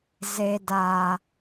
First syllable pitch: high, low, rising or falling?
low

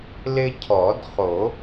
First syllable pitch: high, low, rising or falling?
high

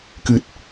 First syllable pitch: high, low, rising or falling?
low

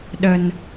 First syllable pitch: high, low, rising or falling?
low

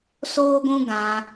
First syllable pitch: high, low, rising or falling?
high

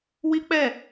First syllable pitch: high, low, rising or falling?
high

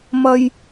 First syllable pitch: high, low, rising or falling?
high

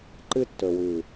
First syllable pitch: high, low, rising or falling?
high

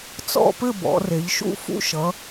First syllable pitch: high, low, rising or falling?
falling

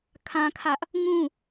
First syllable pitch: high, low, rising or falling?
high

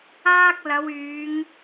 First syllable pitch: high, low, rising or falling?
high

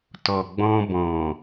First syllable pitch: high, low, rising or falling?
low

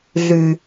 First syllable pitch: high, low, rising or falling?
low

